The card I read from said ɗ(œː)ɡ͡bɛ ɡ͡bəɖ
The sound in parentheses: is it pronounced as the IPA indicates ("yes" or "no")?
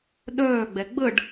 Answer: yes